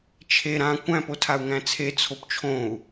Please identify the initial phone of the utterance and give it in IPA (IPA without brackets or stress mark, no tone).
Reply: t͡ʃʰ